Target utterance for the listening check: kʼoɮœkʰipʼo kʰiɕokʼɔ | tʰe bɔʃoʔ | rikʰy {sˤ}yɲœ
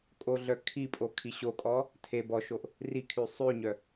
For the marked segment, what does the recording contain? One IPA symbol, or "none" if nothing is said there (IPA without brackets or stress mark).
sˤ